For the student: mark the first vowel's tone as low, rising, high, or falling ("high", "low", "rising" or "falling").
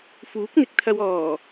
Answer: rising